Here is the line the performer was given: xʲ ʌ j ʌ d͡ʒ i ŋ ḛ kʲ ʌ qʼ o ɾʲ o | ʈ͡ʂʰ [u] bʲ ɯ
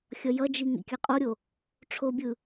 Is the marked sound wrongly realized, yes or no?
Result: yes